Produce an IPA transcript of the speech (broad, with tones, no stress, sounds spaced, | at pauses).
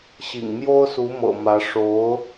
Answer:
ɕ ḭ˨˩ ŋ m j o˥ ʊ̯ s u˧˥ m ɤ̰˨˩ m ä˧˥ ʂ o˧˥ ʊ̯